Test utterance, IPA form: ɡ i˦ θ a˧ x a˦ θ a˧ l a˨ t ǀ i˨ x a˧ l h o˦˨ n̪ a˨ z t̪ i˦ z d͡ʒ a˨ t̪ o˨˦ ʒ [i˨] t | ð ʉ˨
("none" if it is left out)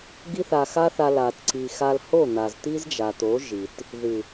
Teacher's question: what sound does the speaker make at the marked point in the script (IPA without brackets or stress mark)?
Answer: i˨